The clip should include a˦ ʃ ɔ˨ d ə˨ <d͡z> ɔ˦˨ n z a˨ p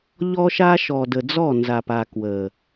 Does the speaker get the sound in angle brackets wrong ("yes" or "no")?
no